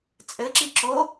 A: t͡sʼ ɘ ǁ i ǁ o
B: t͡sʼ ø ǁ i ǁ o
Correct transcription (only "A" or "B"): A